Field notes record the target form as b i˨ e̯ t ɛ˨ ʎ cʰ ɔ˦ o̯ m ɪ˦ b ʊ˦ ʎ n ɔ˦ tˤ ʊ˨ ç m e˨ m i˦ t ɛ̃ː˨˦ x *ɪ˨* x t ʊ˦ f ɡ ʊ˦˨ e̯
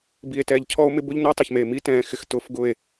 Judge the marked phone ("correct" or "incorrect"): correct